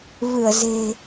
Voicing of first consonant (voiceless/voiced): voiced